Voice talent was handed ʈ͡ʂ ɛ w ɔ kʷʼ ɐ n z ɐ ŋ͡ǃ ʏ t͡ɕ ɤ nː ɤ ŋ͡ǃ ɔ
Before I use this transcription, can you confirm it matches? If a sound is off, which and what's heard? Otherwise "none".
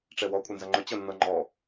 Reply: none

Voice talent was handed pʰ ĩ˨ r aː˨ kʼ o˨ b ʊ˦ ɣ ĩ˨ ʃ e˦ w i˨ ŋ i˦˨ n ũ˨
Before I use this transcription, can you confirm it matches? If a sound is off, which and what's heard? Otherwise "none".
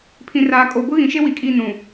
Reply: ŋ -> kʼ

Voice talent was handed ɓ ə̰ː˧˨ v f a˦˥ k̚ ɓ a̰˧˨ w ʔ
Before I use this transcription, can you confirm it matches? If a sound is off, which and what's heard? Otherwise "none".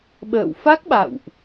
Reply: v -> w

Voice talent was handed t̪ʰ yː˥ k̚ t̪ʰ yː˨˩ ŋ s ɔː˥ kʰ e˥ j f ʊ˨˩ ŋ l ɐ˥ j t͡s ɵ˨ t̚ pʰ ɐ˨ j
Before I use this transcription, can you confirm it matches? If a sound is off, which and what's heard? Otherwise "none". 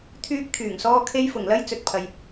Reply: none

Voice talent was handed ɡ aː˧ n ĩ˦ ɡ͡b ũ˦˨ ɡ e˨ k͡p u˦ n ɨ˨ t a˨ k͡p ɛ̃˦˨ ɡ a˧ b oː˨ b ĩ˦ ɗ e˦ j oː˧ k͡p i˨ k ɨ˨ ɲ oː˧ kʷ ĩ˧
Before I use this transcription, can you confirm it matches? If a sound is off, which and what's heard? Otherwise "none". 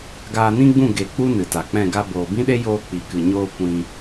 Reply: none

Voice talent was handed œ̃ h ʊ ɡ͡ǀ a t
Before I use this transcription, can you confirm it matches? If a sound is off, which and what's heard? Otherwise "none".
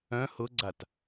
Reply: none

